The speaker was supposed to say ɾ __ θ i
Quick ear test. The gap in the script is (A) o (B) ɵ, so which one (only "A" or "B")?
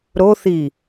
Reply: A